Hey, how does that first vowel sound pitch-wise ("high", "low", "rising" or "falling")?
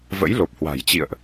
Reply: rising